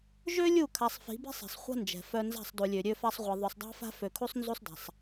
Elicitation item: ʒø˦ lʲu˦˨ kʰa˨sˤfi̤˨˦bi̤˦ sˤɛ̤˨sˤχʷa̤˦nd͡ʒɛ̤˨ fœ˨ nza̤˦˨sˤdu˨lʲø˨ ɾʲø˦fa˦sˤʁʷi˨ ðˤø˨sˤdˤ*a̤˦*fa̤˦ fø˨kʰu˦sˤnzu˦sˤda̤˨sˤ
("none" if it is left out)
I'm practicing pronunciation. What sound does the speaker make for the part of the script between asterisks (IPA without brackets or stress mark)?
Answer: a̤˦